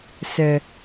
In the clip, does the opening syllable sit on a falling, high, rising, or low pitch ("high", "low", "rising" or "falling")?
low